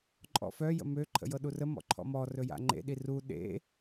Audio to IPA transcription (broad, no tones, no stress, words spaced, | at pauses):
ǃʼɔ̰fœ jə̰mø ǃʰə̰jɤɗurə mɔ̰ǃʰɔ̰mɔ rɵja̰ŋ͡ǃḛ ɗiru ɗḛ